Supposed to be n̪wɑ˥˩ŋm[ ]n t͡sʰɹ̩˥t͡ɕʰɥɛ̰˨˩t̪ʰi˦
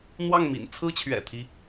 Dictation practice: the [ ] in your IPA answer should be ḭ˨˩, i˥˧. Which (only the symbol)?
ḭ˨˩